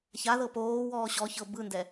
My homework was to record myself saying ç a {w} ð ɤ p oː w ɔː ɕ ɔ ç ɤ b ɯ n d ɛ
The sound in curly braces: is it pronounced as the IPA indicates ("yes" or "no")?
no